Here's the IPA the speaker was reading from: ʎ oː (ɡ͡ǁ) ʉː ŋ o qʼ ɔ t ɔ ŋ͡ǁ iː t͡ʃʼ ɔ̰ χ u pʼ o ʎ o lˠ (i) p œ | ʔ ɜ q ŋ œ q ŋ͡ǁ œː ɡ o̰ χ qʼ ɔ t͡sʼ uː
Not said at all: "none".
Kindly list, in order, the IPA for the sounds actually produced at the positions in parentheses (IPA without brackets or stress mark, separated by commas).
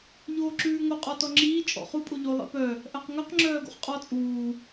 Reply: ǁ, ḭ